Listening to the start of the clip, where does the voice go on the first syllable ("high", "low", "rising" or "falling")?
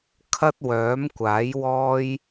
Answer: high